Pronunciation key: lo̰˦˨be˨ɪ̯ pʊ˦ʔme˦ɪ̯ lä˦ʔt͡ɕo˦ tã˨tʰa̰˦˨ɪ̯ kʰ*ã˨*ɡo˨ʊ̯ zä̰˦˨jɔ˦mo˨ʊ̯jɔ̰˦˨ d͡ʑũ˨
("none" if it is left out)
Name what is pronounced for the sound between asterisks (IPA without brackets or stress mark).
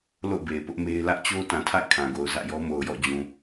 ã˨